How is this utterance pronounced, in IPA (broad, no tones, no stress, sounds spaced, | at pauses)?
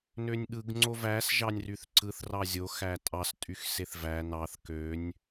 n ø nʲ ɠ ɯ ɡ ŋ͡ǀ o v æ s ʒ ɑ nʲ r y θ ǀ ɯ θ r ɑ zʲ o x æ tʼ ɑ s tʼ y x s e θ v æ n ɑ θ k ø nʲ